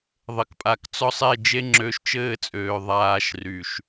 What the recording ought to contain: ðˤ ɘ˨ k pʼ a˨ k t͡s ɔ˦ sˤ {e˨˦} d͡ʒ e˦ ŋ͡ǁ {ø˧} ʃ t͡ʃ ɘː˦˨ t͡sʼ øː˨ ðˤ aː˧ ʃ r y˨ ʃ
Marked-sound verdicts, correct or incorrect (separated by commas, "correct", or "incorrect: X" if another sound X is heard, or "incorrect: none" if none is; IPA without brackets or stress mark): incorrect: e˦˨, correct